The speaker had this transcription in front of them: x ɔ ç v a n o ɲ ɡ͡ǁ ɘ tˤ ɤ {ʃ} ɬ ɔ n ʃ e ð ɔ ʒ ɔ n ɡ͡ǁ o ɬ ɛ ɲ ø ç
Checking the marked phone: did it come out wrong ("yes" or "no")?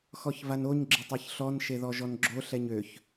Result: yes